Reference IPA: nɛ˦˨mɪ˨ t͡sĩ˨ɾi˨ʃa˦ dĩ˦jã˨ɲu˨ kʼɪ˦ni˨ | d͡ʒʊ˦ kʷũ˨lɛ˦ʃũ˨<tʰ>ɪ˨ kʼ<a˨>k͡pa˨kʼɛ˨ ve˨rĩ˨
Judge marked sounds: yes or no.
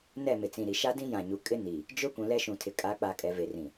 yes, no

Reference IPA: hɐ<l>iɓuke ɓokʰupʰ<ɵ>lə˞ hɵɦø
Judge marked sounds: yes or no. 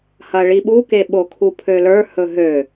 no, no

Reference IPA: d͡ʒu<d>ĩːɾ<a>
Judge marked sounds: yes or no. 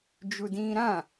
yes, no

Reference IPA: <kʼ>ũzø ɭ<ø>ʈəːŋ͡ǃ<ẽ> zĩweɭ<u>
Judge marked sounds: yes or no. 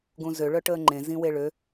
no, no, yes, no

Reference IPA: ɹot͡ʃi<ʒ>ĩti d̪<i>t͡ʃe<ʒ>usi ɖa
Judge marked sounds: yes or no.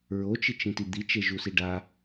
no, yes, yes

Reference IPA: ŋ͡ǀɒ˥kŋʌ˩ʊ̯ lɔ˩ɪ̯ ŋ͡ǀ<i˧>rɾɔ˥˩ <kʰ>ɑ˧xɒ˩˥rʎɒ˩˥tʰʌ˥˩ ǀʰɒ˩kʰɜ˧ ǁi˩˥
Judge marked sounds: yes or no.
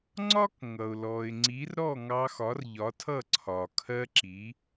no, no

